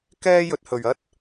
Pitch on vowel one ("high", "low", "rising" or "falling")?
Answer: high